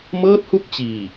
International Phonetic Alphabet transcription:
m ɤː˥˩ t̚ h u˥˩ k̚ t͡ɕ iː˨˩

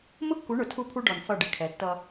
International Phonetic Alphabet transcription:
m ʊ˦ kː u˨˦ ɳ ʊ˨ tʰ u˦ pʰ u˦ ɖ ɔ˨ n f ʌ˦˨ ɖ ɪ˨ kʰ ɛ˨˦ tː ʌ˦

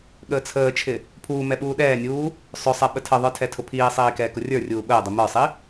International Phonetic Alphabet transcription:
ɠ əː t͡sʰ əː t͡ʃʰ ɪ | pʰ uː m ɛ ɓ uː ɗ ɛː nʲ uː | sˤ ʊ sˤ ɛ ɓ ə tʰ ə ðˤ ə˞ tʰ ɛ tʰ ʊ pʰ iː sˤ iː k ɛː k ʊ rʲ ə˞ rʲ uː ɓ əː dˤ ɪ m ə˞ sˤ i

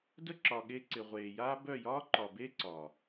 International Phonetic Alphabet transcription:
d ə˦ ǁ ɒ˨ ɠ e˧ ǀ ɪ˨ ʁʷ eː˨ j aː˦ b œ˦˨ j ɒː˦ ǃ ɒ˨ b e˦ ǀ ɒ˨

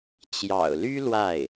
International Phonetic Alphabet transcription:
t͡ɕ j ɑ̰˨˩ ʊ̯ l y˥ l w a˥˩ ɪ̯

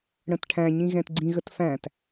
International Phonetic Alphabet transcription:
ɽ ə̃ t ʈʰ æ̃ ɲ ĩ ɣ ɛ̃ t ɡ͡ǀ ĩ ɣ ə t f æ̃ t

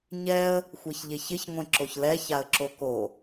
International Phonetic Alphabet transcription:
ɲ ɛ ə̯ | xʷ e ç ʎ e ç ɪ ç ŋʷ ẽ ǁ o ç l ɛ ç a ə̯ ǁ o k o

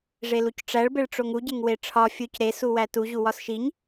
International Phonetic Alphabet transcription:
ʐ e l u c ʈ͡ʂ æ ɭ b e ɭ ʈ͡ʂ o ŋ u ɟ e ŋ w e ʈ͡ʂʰ ɒ fʲ u c ɾ e s u w æ t u ʑ u w ɒ s ʃ i ɲ

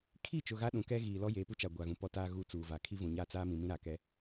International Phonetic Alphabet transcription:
kʰ i˦˨ t͡ʃ ʊ˨ ɣ a˦ ɗ ũ˨ k ɛ˦ ɣ iː˨ l ɔ˦ j eː˨ p u˦ t͡ʃ a˨ ɡʷ a˨ ɣ ũ˨ p ɔ˦ t aː˦ ɣ u˦˨ t͡s uː˨ v a˨ kʰ i˦ v ũ˨ ɲ a˦˨ t͡s aː˦ m ĩ˨ m ĩ˦ ɾ a˨ k ɛ˦

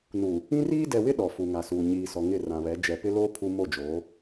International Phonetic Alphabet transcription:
n u˨ | ĩ˦ r iː˦ d ɛ˨ w ɪ˦ ɗ ɔ˨ f u˨ ŋ a˨ s uː˨ ɲ iː˨ s ɔ˨ ŋ ɪ˦˨ r ã˨ β ɛ˨˦ d͡ʒ ɛ˨ p ɪ˦ l oː˦ pʰ u˦ m o˦˨ d͡ʒ oː˨˦

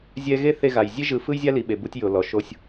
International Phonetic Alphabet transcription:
zʲ ɛ˦ ɣ e˦ θ e˦ ɣ a˨ j zʲ e˦ ʒ ɯ˨ f ɯ˦ j zʲ a˦ l i˨ ɓ e˨ b u˦ tʲ j o˨ l ɔ˨ ʃ o˦ sʲ

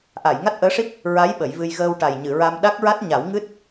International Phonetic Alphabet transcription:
ʔ a˨˩˨ j ŋ a˦˥ t̚ ʔ əː˧˥ ʂ i˦˥ p̚ | ɹ a˧˥ j ɓ ə˨˩˦ j v ɨ˧ j ɣ əː˧ w ʈ a˨˩ j ɲ ɨ˨˩˨ ɹ a˧ m ɗ a˦˥ k̚ ɹ a˦˥ t̚ ɲ a˨˩˦ w ŋ ɨ˦˥ t̚

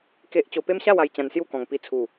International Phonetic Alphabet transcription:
k e˦ ʔ t͡ɕ o˧ p e˦ m ɕ a˥˧ w a˧ j t͡ɕ ã˧ n s j u˥˧ k ɔ̃˨˩ ŋ p i˧ t͡sʰ u˨˩

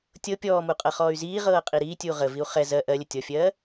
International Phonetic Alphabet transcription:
tʲ ɤ pʲ ɔː m u qʼ ɤ χ ɔː y̯ z iː ʁ ɤː qʼ i ɾ iː tʲ uː ʁ ə v i u̯ χ ɛ z ɜ ʔ ɜ lʲ ə tʲ ɔ fʲ ɜː

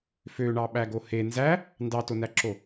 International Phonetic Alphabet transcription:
f ø ɳ ɑ ɓ æ ɡ o h e n z æ | n d ɑ t o n æ ǁ o

